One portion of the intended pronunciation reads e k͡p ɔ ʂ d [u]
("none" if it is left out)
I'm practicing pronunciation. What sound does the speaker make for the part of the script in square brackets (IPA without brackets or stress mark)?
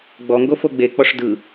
ɯ